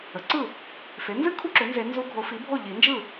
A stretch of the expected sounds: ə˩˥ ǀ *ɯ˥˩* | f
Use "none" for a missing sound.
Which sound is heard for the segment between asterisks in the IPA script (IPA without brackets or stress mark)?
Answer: ɯ˥˩